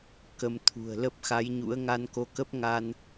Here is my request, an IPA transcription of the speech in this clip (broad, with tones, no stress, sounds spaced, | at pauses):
k ə˧ m t̪ʰ ṳ˨˩ ə̯ l ə˦˥ p̚ x a˨˦ j ɲ ṵ˧˥ ə̯ ŋ a˧ n k o˧ k ə˦˥ p̚ ŋ a˧ n